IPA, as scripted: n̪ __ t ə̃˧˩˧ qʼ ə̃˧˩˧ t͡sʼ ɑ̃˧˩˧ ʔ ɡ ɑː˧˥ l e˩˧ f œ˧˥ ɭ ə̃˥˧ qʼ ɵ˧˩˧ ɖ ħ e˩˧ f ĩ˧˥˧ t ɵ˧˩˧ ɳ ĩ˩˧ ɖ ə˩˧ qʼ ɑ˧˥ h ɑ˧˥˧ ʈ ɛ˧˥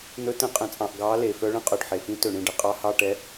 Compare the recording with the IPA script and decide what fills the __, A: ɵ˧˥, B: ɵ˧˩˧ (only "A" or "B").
A